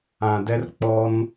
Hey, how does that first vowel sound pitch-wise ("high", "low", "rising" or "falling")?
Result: low